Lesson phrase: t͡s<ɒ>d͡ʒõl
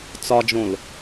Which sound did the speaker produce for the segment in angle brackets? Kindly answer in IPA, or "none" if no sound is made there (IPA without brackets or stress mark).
ɒ